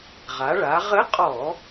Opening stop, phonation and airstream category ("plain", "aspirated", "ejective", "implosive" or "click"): ejective